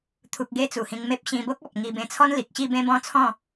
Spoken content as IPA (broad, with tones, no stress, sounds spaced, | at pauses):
t̪ʰ u˨ k̚ ɡ e˧ t͡s u˨˩ h ĩ˧ ŋ m e˦ p̚ ɕ ĩ˧ b o˦ k̚ ɔ˨ p̚ ŋ i˧ b ẽ˧ t͡sʰ ɔ˦ n l i˨ k̚ ɕ i˥˧ b ẽ˦ b ɔ̃˦ t͡sʰ ɔ̃˥˧